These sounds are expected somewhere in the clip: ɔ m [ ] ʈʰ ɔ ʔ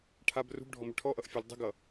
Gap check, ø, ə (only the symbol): ø